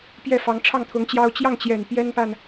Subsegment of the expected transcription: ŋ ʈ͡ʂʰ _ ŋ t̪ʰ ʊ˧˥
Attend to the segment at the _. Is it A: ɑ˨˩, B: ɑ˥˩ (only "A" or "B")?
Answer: B